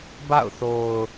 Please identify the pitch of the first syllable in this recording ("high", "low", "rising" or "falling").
falling